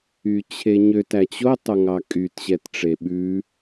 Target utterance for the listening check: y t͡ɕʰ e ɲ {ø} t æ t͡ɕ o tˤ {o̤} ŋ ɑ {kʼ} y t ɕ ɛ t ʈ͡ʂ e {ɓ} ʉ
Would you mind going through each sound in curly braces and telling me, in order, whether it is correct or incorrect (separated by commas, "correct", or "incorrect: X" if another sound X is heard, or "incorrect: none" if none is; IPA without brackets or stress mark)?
correct, incorrect: o, correct, correct